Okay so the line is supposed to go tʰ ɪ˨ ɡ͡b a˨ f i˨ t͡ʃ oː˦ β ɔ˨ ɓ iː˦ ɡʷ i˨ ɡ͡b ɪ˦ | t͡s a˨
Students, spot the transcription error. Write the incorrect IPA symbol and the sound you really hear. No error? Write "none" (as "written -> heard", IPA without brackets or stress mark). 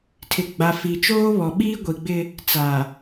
none